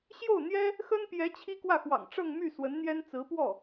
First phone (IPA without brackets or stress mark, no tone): ɕ